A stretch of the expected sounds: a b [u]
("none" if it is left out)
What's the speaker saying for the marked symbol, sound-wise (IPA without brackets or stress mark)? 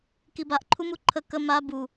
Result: u